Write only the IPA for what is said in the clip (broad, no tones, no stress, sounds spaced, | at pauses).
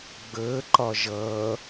ɡ͡b əː ǃ ɒ ʒ ʌː